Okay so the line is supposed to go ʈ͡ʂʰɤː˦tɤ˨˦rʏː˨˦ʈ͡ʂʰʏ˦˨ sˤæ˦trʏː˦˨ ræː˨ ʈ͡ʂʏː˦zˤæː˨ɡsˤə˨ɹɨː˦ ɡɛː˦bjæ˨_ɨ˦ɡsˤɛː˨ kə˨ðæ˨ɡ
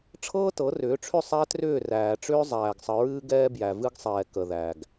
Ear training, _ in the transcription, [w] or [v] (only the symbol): v